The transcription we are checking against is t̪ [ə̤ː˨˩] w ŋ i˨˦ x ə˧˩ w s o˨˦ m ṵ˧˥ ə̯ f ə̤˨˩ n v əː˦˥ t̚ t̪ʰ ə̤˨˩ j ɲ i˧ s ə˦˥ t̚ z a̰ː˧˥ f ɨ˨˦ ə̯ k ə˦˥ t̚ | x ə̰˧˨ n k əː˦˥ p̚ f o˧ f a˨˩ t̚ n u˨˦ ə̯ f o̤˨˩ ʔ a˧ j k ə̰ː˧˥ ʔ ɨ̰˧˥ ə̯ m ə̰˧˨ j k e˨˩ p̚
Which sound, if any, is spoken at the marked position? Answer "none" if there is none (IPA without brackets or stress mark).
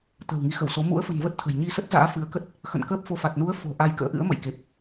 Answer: ə̤ː˨˩